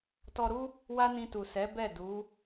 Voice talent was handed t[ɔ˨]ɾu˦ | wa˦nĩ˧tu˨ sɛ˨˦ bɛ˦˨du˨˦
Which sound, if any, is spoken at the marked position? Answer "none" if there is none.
ɔ˧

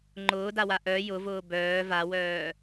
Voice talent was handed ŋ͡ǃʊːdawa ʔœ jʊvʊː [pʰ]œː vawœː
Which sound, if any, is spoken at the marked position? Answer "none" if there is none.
b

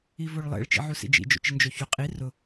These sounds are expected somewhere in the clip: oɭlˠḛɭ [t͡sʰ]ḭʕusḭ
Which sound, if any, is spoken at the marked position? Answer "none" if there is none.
t͡ʃ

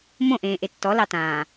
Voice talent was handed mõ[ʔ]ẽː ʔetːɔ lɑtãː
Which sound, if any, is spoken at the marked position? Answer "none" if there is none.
ʔ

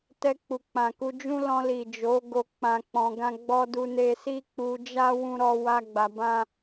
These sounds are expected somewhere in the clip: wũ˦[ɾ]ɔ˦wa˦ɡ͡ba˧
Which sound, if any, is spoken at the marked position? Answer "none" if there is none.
ɾ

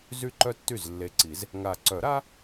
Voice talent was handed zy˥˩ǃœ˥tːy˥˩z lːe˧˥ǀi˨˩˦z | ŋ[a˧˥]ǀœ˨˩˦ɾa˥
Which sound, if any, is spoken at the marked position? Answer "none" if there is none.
a˨˩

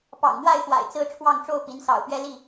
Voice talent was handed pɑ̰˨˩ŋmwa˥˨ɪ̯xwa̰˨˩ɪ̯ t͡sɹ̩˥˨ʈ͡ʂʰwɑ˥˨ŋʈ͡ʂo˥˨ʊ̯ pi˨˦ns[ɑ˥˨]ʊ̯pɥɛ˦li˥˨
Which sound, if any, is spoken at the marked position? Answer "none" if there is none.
ɑ̰˨˩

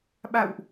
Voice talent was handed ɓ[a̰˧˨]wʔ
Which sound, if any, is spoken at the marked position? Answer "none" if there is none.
a̰˧˨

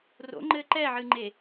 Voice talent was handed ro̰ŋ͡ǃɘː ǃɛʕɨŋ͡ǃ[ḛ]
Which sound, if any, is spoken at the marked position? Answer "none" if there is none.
e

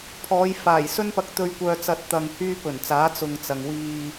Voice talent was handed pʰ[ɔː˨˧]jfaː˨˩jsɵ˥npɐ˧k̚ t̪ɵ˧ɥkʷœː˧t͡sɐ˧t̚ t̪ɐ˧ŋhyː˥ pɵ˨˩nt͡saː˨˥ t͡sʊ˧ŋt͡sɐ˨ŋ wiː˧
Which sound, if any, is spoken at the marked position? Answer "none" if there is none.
ɔː˨˧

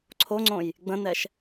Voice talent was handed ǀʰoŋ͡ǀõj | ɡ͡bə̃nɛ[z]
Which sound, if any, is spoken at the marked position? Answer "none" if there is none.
ʃ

